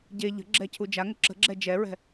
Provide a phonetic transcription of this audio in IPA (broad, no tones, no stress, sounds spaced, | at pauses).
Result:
ɟ e ʎ ə̤ ɡ͡ǁ ɛ cʰ u d͡ʒ a ŋ ə ǁ ə̤ ɡ͡ǁ ɛ d͡ʒ ɛ ɹ ɛ̤